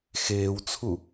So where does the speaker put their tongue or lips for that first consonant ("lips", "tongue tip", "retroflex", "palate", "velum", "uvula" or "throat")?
velum